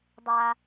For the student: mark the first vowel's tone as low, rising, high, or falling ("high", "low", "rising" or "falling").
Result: low